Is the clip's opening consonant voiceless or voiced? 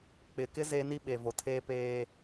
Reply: voiceless